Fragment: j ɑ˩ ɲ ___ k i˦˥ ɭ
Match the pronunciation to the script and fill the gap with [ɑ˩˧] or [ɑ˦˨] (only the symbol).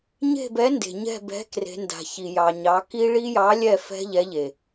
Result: ɑ˩˧